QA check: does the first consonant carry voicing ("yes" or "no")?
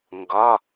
yes